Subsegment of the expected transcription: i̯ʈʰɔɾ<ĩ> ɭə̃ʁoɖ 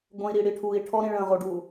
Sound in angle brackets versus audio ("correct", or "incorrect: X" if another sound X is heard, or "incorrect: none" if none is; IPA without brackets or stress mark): correct